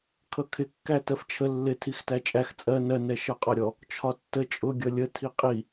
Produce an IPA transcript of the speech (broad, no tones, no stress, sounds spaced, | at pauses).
kʰ ʌ kʰ ɪ kː æ t ɜ f t͡ʃʰ ə lː ɪ tʰ i x t æ t͡ʃʼ æ x t͡sʼ ɜ n ɜ n ɛ ʃ ʌ qʼ ɒ ɾʲ ɔ | t͡ʃʰ ɒ tː ə t͡ʃʼ ʊ ɡʲ ʌ lʲ ə tʰ i qʼ i